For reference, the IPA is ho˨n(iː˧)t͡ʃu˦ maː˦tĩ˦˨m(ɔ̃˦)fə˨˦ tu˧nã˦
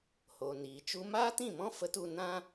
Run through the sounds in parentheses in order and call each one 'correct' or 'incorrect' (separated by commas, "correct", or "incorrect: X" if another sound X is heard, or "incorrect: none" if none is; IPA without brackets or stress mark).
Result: incorrect: iː˨, correct